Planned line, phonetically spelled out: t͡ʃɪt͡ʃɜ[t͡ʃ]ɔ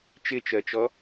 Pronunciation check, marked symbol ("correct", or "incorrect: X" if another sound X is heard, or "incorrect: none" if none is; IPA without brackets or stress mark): correct